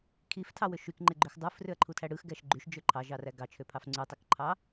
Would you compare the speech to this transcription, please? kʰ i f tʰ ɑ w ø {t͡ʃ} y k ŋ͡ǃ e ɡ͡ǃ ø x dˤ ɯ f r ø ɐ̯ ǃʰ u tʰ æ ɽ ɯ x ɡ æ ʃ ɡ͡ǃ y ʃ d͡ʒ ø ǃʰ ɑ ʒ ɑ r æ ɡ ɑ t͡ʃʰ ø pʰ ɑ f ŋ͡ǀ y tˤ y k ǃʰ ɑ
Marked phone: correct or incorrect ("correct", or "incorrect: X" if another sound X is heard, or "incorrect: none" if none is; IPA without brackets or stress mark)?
incorrect: ʃ